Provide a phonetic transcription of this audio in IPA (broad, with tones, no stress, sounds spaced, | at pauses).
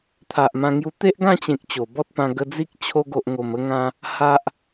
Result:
t̪ʰ a˨ ʔ m ã˧ ŋ j u˧ t̪ e˦ ʔ ɡ ã˥˧ t͡ɕ ẽ˨ k̚ t͡ɕ o˨˩ b ɔ˦ t̚ p ã˧ ɡ ə˧ d͡z i˦ k̚ t͡ɕʰ o˧ ɡ o˨ ʔ ŋ o˨˩ m ə˧ ŋ ã˧ | h a˦ ʔ